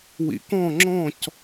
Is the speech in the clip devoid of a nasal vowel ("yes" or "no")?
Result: no